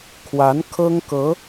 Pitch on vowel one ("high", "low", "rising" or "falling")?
rising